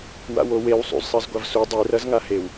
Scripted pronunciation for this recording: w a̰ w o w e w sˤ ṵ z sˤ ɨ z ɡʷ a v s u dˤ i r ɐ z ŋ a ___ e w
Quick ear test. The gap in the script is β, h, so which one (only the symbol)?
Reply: h